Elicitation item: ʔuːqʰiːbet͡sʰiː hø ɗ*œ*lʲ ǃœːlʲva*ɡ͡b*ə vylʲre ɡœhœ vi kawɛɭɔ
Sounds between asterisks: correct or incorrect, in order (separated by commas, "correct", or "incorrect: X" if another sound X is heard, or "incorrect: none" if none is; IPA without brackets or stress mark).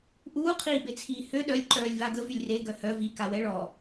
correct, incorrect: ɡ